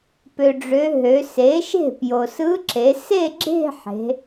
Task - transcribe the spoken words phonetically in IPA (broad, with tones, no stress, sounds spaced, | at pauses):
p ø˩ ɖ͡ʐ ø˩˧ ɦ ø˩˧ s e˩˥ ʃ e̤˥˩ p j o˩ s ɯ˧˥ ǁ e˩˧ s e˥˧ ɡ͡ǁ e̤˥˧ ħ e̤˩˧